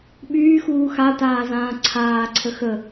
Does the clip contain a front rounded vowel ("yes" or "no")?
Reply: yes